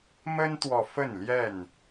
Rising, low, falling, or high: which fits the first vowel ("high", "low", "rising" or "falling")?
high